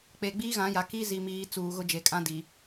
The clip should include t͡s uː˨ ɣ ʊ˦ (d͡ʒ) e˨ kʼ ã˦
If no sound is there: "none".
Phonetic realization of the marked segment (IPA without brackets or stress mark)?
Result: d͡ʒ